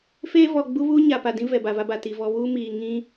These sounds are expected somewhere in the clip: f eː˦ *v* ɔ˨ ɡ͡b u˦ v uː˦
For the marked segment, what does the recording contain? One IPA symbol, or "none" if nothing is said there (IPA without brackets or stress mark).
v